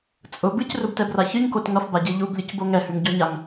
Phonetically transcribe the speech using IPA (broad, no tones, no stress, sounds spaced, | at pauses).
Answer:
t͡sʼ ʊ b ɨ c r ʊ b t ɛ b r a ç ɨ ɲ k o t ŋ ʌ f b a ɟ e ʎ u b lʲ ɨ c b o ŋ ɛ h ʉ ŋ ɟ ɔ ɲ a ŋ